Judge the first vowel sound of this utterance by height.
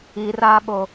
high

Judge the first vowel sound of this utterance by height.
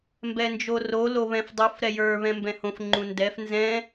mid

